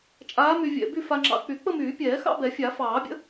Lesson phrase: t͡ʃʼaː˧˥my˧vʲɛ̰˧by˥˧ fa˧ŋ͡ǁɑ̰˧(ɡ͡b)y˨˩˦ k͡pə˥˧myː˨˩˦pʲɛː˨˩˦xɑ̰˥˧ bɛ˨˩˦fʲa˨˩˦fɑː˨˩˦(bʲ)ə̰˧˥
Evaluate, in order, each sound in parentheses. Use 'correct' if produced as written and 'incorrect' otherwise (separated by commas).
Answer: incorrect, correct